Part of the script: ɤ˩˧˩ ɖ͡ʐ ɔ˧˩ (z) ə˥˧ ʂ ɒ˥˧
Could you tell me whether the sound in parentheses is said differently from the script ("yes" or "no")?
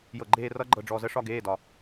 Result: no